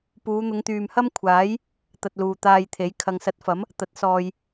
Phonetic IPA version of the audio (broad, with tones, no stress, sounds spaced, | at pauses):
p uː˨˧ n̪ ʊ˨˧ ŋ t̪ yː˨ m h ɐ˥ m kʷʰ aː˨˥ j | t̪ ɐ˧ t̚ l uː˨ t̪ aː˧ j t̪ʰ e˨˥ j kʰ ɐ˨ ŋ s ɐ˨˥ t̚ f ɐ˨˥ m | t̪ ɐ˨˥ t̚ s ɔː˨ j